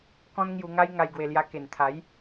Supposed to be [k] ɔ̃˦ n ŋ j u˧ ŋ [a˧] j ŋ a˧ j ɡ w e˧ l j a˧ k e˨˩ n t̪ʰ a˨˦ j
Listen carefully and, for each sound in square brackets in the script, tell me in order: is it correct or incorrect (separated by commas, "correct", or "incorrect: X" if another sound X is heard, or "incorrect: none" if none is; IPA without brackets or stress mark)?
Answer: correct, incorrect: a˦